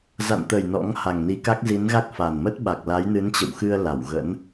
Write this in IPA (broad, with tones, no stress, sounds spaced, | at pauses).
z a̰˧˨ n t̪ ə˨˩ j n ɔ̰˧˥ ŋ h a˨˩ ŋ n i˨˦ k a˦˥ k̚ z i˨˦ n ɣ a˦˥ k̚ f a˨˩ n m ə˦˥ t̚ ɓ a˨˩ k̚ l a˨˦ j n ɨ˨˦ n t͡ɕ ə̰˧˨ w x ɨ˧ ə̯ l a˧˩ w ɣ ə̰˧˥ n